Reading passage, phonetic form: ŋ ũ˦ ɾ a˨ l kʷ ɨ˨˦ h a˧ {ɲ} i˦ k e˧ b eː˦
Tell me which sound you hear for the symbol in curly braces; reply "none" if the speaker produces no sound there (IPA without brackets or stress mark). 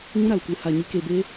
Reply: ɲ